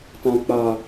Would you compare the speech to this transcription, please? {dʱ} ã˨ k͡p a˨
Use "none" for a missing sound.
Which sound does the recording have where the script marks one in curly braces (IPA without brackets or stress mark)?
t